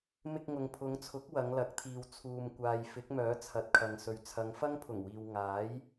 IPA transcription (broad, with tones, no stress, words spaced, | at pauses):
mɪ˧k̚ŋʊ˨ŋpʰʊ˨˧ŋt͡sʰʊ˨˥k̚ wɐ˨˧ŋlɐ˨˥k̚t̪ʰiː˨w t͡sʰuː˨mkʷaː˨j fɪ˨˥k̚mœː˨˥ t͡sʰɐ˨˥t̚kʰɐ˨ŋsɵ˨ɥ t͡sʰɐ˨˧ŋfɐ˥ŋpʰʊ˨˩ŋwiː˨w ŋaː˨˥j